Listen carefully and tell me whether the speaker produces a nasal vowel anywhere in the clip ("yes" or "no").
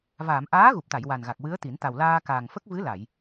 no